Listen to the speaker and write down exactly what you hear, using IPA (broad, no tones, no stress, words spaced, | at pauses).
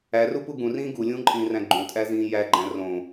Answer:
ærupu ɡũrĩː ɡulʲũːǃʼĩːræ̃ ɡ͡ǃũtʼæzĩː jæɡ͡ǃæ̃ rõ